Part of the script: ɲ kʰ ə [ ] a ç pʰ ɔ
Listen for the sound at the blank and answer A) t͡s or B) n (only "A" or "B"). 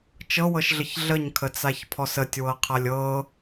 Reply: A